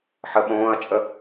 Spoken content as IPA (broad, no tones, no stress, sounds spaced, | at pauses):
ħ ə ɓ õː ɐ̯ t͡ʃʼ ə